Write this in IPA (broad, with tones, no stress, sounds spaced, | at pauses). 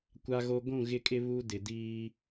kʷ a˦ ɣ o˦ ɡʷ ũ˦˨ ɣ ɪ˦˨ kʼ ɪ˦ β u˦ d ɪ˨ d iː˦